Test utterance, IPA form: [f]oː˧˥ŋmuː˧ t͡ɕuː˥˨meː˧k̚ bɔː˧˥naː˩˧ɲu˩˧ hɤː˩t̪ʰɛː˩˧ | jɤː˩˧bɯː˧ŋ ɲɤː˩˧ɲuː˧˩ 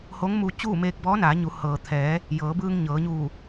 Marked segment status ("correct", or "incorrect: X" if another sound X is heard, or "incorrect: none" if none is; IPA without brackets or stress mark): incorrect: h